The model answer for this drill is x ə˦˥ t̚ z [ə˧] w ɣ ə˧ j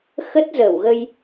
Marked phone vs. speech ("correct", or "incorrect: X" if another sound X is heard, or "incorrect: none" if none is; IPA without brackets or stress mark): incorrect: ə˧˩